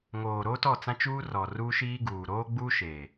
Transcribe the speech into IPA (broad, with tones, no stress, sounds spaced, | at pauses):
ŋ oː˨ ɾ o˦ t ɔ˦˨ t͡s ã˦ t͡ʃ uː˦ r ɔ˨ r u˦ ʃ iː˦ ɡ uː˨ ɾ oː˦ ɡ͡b u˦ ʃ eː˨